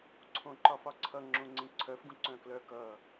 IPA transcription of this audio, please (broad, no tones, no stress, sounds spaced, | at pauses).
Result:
ǀʰ õ ǃ ɒ f ɒ ǀʰ ʌ ŋ͡ǁ õ ŋ͡ǀ ĩ ǀʰ œ f ɡ ũ ǀ œ̃ k l œ k ʌ